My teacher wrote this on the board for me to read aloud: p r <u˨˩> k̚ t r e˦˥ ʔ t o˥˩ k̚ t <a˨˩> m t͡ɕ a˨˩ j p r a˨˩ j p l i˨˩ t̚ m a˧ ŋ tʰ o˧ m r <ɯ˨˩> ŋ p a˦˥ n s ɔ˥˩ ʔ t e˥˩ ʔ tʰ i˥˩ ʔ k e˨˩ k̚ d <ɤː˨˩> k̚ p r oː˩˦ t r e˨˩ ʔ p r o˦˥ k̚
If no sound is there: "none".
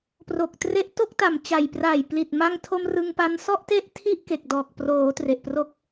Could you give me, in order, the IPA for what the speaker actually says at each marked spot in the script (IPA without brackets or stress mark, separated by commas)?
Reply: o˨˩, a˨˩, ɯ˧, ɔː˨˩